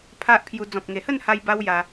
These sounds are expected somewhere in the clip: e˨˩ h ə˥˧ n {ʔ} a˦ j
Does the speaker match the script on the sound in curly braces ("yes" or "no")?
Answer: no